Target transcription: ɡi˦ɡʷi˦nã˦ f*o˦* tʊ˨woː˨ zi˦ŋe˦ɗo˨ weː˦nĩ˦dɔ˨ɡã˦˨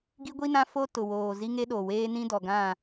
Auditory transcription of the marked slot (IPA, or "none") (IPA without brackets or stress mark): o˦